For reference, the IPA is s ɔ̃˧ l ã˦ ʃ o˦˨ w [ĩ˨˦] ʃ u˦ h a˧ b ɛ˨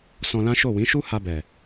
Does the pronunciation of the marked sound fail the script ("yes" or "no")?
no